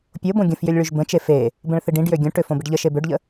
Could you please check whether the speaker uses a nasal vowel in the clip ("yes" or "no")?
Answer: yes